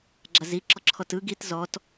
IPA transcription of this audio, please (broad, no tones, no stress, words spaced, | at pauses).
ɡ͡ǁaziǁɔǁʰɔt ɯ ɡit zɔt